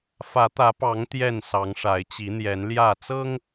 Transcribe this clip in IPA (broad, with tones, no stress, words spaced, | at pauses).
fä˨˦t̪ä˨˦pɑ˨˦ŋ t̪jɛ˥˨n sɑ˨˦ŋʂa˨˦ɪ̯t͡ɕi˨˦n̪jɛ˨˦n ljä˥˨ t͡sɤ˦ŋ